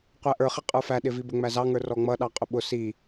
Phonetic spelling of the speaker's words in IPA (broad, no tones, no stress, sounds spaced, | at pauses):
qʷ æ ʔ ə˞ χ ɪ qʼ ə˞ f æ ɗ ɪ v i b ə ŋ͡m æ z ɑ ŋ ə˞ r ɔ ŋ͡m ʌ ɗ ɑ qʼ ʊ ɓ ʊ s i